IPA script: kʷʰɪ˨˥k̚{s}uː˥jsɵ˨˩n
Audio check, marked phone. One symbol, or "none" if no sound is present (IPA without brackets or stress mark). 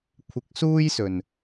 s